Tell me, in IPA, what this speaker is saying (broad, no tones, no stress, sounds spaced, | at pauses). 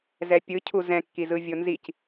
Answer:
z ɛ pʲ ɯ cʰ u z ɛ̃ kː i z ɯ vʲ o n z i c